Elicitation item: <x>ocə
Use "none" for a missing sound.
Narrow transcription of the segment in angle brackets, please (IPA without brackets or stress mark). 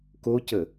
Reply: k